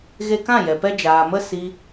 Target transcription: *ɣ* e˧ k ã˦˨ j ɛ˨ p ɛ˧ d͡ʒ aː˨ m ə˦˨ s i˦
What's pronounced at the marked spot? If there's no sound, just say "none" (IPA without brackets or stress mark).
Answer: ɣ